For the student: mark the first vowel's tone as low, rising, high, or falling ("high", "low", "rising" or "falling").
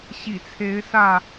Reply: low